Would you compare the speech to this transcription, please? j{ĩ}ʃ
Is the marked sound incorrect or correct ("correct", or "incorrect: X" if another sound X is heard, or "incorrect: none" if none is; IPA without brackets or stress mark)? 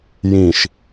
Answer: correct